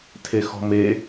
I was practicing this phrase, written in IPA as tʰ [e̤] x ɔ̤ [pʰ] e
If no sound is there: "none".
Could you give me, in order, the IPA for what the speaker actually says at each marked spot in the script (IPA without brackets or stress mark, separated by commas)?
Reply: e, m